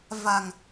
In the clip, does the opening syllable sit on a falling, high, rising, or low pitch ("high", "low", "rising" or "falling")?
low